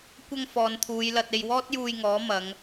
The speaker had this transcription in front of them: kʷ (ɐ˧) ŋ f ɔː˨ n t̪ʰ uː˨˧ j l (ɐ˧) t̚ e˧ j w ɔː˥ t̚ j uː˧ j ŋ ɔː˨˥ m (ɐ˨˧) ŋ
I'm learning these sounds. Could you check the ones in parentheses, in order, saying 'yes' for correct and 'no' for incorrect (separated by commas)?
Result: yes, yes, yes